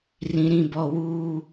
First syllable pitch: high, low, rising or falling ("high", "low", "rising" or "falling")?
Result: low